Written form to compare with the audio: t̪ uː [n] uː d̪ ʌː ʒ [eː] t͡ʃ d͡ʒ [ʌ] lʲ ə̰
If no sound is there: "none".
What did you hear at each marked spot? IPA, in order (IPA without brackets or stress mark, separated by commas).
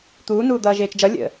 n, eː, ʌ